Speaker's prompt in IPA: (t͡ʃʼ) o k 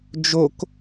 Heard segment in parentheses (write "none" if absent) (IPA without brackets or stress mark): d͡ʒ